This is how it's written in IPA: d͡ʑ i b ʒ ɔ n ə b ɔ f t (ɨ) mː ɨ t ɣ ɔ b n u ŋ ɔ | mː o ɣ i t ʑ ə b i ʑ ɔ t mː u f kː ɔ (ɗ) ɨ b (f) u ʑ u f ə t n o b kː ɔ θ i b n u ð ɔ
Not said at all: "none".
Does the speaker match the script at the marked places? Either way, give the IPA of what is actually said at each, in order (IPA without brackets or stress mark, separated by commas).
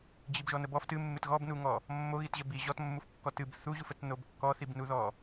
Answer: ɨ, t, θ